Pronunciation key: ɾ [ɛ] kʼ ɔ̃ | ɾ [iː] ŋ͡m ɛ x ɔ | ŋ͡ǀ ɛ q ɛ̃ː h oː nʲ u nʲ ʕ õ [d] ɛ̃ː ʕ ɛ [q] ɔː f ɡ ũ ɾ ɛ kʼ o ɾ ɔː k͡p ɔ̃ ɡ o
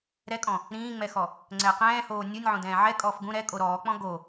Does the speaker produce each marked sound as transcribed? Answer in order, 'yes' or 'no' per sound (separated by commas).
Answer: yes, no, yes, no